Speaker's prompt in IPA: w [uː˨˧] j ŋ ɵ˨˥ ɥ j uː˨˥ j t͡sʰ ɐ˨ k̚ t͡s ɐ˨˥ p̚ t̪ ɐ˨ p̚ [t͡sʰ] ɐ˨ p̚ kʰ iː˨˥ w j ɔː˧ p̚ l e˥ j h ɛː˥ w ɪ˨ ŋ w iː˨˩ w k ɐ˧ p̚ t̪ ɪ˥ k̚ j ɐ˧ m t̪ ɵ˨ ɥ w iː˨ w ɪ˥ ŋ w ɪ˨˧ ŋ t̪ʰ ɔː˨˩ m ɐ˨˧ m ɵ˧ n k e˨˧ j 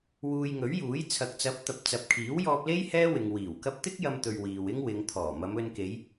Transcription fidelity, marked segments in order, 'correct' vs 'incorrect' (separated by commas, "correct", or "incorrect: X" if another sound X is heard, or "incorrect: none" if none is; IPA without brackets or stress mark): incorrect: uː˧, incorrect: t͡s